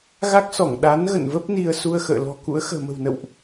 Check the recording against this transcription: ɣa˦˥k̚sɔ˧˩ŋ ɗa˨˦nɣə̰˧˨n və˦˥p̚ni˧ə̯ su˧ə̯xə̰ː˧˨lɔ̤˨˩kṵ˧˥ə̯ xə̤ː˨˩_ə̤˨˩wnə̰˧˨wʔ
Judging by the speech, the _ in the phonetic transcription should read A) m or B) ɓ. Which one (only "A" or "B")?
A